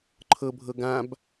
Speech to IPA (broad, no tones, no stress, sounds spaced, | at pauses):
ǃʰ ɤ bʱ ɤ ɡ ã b